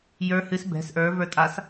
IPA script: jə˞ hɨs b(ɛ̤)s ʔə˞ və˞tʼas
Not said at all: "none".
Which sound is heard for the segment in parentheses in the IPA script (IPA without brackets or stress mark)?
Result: ɛ̤